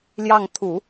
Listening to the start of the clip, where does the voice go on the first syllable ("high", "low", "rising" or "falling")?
falling